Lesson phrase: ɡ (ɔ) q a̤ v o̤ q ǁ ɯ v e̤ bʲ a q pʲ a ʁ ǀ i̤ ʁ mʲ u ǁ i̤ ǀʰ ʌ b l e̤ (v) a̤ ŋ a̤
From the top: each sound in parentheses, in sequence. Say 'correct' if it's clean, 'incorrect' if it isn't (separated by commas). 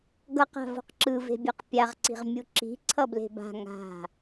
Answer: incorrect, incorrect